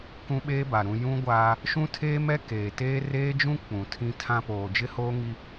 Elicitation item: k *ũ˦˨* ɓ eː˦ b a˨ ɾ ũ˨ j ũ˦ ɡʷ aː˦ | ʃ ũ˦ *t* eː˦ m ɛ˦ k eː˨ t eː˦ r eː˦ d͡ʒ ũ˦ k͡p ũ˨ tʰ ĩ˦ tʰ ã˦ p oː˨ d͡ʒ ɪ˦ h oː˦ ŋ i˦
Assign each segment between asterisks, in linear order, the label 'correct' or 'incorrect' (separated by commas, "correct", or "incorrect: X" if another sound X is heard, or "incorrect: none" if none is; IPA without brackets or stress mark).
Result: incorrect: ũ˦, incorrect: tʰ